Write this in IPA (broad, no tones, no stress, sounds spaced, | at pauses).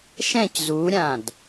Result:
ʃ ɛ̃ c z u ɾʲ ã d